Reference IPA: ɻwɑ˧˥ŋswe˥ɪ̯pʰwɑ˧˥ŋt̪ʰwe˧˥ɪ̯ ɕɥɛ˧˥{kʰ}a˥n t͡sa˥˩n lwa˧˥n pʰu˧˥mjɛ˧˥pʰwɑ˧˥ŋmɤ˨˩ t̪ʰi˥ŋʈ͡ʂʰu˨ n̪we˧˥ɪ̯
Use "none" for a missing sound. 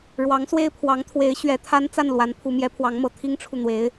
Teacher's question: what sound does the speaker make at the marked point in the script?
t̪ʰ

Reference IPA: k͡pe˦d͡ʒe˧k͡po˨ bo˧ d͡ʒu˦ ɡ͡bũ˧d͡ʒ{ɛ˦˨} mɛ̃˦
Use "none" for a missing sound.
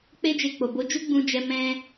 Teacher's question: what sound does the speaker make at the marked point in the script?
ɛ˧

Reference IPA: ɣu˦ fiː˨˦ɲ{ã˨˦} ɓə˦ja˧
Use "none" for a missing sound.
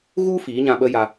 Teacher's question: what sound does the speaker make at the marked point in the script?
ã˧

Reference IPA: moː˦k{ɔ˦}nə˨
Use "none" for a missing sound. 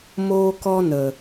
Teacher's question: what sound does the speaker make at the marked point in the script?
ɔ˦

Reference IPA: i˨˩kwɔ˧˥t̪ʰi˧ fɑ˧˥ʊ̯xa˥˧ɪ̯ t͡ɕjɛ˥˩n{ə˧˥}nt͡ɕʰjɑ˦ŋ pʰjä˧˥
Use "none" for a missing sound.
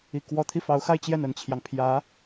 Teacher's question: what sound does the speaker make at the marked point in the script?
ə˨˩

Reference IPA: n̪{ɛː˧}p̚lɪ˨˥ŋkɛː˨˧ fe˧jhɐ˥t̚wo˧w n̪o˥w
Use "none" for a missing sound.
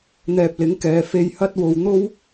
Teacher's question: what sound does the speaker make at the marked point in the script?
ɛː˧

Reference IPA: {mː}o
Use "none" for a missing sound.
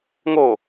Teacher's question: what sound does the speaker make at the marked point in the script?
ŋ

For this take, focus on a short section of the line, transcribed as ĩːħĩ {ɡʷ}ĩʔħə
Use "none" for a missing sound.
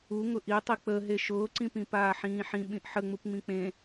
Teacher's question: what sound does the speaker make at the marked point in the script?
ɓ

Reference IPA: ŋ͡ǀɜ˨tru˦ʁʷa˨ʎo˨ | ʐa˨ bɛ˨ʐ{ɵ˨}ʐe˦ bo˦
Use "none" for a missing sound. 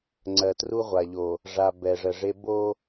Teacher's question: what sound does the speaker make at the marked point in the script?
ə˨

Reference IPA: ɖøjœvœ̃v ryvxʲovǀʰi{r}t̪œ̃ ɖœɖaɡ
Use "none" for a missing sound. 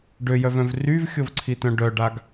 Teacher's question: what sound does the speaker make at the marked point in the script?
none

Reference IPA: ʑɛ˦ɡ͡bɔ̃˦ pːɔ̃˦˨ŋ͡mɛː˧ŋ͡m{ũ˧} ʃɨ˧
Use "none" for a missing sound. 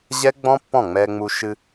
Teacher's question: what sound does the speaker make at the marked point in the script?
u˧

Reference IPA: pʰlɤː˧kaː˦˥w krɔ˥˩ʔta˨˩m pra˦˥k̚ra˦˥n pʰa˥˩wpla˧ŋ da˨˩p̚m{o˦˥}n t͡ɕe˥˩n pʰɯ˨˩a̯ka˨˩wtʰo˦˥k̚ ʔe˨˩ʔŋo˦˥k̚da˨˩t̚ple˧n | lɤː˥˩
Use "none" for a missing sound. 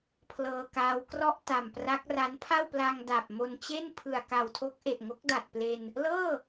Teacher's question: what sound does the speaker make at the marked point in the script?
o˧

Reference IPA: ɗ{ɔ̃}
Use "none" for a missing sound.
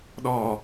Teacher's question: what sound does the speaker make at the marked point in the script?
ɔ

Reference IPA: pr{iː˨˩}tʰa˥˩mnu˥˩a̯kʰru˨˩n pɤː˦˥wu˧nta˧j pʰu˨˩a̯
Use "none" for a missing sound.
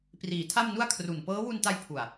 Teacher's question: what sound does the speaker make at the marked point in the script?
iː˩˦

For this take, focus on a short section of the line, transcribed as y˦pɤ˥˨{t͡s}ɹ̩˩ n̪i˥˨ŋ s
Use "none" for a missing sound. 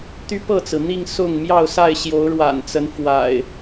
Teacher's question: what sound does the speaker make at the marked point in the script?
t͡s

